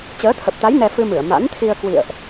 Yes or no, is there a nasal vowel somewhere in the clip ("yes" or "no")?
no